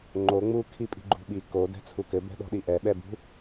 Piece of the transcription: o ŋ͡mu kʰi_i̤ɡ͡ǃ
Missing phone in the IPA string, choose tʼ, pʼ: pʼ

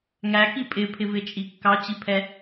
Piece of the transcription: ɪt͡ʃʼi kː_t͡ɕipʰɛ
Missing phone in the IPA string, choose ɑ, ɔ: ɑ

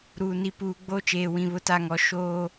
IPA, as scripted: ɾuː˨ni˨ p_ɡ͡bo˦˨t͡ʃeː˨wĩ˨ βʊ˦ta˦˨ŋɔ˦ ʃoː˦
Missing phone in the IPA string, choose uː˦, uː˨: uː˨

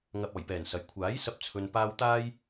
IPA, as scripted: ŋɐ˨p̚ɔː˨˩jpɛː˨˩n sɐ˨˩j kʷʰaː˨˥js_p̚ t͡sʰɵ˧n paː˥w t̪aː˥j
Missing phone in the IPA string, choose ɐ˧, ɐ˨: ɐ˧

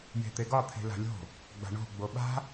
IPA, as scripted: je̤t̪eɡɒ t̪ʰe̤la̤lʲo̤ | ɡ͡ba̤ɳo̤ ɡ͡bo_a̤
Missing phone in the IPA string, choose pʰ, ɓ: ɓ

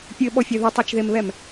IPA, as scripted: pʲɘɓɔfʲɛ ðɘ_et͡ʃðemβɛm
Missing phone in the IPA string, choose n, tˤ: tˤ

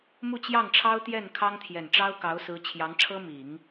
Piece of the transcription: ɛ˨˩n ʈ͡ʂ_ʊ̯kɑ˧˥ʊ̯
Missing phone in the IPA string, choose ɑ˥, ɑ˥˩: ɑ˥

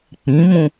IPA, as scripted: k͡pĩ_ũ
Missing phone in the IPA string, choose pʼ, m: m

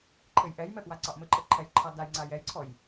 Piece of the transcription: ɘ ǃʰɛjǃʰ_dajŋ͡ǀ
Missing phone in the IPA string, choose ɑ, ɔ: ɑ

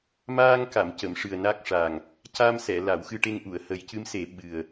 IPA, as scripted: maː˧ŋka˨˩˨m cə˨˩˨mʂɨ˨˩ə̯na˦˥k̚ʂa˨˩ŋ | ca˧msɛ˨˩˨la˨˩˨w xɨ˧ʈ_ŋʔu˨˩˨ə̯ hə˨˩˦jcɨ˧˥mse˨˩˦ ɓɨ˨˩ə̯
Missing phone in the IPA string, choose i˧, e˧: e˧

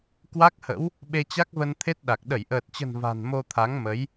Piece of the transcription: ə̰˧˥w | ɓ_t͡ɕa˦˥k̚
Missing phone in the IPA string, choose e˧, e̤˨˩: e˧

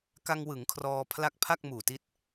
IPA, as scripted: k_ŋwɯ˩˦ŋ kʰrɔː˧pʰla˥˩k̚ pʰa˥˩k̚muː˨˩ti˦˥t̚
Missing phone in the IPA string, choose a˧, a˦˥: a˧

